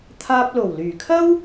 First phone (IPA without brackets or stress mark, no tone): t̪ʰ